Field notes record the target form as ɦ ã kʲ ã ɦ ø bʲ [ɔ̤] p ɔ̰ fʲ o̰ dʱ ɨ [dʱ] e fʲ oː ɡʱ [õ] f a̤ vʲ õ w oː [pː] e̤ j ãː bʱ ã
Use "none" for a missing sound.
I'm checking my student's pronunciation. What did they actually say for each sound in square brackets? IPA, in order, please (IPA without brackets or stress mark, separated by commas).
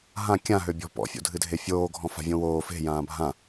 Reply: ɔ̤, dʱ, ɔ̃, f